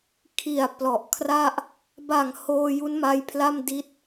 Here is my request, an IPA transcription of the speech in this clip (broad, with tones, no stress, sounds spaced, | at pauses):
kʰ i˨˩ a̯ p l ɔ˨˩ ʔ kʰ r a˥˩ ʔ | b a˨˩ ŋ h oː˧ j u˦˥ n m a˧ j pʰ l a˥˩ m d i˦˥ t̚